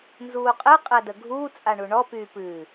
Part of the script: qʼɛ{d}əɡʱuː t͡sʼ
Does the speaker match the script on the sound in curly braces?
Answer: yes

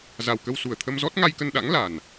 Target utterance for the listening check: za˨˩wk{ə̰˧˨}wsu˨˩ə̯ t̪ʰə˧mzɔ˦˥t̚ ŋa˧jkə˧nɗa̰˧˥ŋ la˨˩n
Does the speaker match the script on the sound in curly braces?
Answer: no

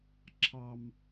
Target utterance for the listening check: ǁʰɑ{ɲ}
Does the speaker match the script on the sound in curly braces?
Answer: no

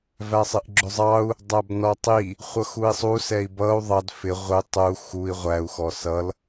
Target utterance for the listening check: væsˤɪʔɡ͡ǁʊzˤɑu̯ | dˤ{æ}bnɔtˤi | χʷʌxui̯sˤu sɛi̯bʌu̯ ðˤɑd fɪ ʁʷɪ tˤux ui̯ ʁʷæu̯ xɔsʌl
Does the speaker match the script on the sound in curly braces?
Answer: yes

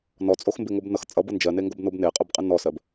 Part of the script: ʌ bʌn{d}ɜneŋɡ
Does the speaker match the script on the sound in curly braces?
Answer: no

